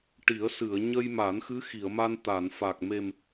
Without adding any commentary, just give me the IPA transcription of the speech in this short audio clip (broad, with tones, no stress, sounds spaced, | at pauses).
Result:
ʈ i˨˩˦ ə̯ s ɨ˨˩˨ ə̯ ɲ ə˧ j m a˨˩˦ n x ɨ˧˥ x i˨˩˨ ə̯ m a˧ n t̪ a˨˩˨ n f a˨˩ k̚ m e˨˩ m